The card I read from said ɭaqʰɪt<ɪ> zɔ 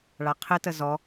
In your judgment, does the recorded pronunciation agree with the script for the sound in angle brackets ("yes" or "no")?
no